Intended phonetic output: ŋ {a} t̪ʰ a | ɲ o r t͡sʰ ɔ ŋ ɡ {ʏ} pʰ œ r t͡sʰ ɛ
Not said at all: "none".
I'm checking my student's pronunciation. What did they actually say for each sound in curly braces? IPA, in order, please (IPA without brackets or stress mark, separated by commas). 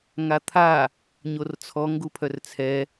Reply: a, u